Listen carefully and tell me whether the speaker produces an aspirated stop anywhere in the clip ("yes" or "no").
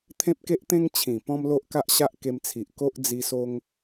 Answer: yes